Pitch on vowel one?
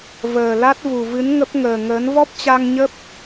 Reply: low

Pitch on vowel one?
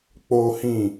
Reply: high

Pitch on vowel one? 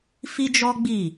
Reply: high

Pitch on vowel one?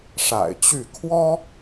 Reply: low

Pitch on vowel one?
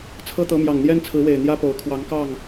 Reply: high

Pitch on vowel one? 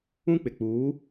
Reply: high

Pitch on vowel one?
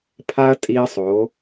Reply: high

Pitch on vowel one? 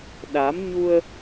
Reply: rising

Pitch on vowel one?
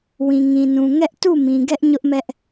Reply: low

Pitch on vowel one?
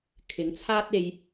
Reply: rising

